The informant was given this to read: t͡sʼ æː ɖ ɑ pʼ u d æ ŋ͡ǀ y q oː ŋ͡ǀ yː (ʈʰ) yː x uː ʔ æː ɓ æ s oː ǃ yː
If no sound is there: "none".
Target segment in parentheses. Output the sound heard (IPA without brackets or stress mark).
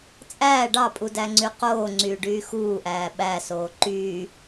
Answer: ɖ